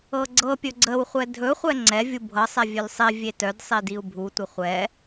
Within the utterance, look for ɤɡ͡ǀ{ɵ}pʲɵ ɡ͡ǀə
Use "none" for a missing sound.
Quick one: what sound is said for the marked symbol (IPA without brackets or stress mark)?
ɤ